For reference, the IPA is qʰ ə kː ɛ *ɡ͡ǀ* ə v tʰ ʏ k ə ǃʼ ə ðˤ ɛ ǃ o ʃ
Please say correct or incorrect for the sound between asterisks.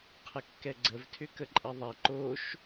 correct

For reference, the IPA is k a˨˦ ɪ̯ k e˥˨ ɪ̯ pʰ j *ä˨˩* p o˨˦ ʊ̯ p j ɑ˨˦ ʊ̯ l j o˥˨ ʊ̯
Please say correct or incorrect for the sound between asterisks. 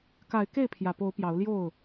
correct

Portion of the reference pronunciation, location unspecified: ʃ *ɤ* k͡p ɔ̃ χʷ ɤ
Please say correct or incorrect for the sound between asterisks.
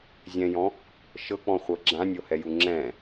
correct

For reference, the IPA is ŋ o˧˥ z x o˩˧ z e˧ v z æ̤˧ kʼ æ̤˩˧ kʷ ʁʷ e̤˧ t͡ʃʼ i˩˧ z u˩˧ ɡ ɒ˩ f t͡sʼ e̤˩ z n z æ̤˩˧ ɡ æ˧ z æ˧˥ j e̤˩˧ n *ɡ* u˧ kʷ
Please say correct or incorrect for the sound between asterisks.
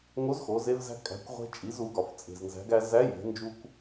incorrect: d͡ʒ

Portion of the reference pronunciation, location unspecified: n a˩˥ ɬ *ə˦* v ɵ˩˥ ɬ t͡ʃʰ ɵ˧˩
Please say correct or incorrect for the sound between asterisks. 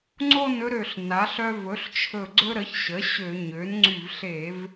incorrect: œ˦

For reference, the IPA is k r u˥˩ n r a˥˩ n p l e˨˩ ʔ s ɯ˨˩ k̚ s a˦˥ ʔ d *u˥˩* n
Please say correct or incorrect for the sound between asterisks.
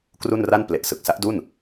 correct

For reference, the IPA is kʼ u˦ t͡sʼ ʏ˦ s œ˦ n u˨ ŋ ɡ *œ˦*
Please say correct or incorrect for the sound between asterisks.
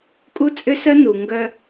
correct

